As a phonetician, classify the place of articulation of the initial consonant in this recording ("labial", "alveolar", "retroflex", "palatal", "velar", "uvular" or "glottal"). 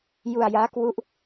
palatal